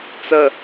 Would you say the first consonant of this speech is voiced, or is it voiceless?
voiceless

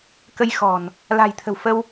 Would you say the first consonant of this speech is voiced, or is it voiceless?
voiceless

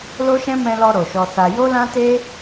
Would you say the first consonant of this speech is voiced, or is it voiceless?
voiced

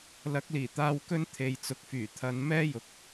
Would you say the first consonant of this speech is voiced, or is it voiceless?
voiced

